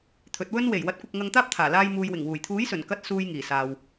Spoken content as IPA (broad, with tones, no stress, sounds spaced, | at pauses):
t̪ʰ ɵ˨˥ t̚ w ɵ˧ n w e˨˩ j w ɐ˨˥ t̚ kʷ ɪ˨ k̚ ŋ ɐ˧ ŋ t̪ aː˥ p̚ t̪ʰ aː˨˩ l aː˧ j m uː˨ j w ɪ˨˩ ŋ w uː˨˩ j t̪ʰ uː˨˥ j s ɵ˨˩ n k ɐ˧ t̚ s uː˧ j ŋ iː˨˩ s aː˨ w